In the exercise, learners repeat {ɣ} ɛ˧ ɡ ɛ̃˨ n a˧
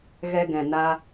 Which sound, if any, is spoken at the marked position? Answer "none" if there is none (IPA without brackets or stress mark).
ɣ